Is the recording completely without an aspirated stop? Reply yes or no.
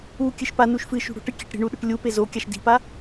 yes